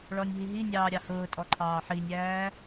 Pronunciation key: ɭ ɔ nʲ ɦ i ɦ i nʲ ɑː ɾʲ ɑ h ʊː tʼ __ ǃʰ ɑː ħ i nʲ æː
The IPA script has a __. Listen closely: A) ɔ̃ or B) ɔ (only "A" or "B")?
B